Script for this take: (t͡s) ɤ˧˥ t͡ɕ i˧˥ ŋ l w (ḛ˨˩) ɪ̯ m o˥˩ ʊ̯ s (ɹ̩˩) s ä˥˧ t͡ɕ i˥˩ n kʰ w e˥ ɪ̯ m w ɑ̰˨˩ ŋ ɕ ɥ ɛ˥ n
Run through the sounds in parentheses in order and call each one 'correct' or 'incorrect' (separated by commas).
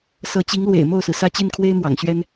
incorrect, correct, correct